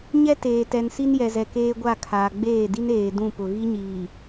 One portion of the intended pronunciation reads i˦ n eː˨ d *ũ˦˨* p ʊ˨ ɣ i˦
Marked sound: correct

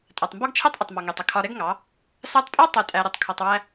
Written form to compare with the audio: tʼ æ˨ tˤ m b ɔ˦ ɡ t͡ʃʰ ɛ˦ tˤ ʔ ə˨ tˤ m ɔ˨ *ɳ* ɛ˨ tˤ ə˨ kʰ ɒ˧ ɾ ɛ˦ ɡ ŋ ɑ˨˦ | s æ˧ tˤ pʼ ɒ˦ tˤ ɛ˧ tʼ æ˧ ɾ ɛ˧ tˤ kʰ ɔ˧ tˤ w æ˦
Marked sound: incorrect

